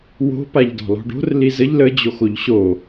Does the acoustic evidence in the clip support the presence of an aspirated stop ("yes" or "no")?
no